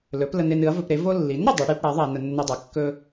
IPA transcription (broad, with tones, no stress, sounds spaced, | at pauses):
l ɵ˩˥ p l ə˧ n e˧ n ɨ˩˥ ɐ̯ v ɵ˧ p ɾ e˩˥ v o˧ lː i˩˥ n ɾ ɵ˧ dˤ ɨ˩˥ ɽ i˩˥ p ɽ a˩˥ ðˤ a˧ ɐ̯ n ə˧ nː ɵ˧ dˤ a˩˥ kː ɵ˧